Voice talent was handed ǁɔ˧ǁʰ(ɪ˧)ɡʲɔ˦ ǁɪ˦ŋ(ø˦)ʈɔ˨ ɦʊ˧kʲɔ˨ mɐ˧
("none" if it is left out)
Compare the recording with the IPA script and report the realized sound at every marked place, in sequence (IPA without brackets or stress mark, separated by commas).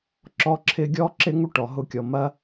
ɪ˧, u˦